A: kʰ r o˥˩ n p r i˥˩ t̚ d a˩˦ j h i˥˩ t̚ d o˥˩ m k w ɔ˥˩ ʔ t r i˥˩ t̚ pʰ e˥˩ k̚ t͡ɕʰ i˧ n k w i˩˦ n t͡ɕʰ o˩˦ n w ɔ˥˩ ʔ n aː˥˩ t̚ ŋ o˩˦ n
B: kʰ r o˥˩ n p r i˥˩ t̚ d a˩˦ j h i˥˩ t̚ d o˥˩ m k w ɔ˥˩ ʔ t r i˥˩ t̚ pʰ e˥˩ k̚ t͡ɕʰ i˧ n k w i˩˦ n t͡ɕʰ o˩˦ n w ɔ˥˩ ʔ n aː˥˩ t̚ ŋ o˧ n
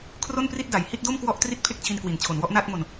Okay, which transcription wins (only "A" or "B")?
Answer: B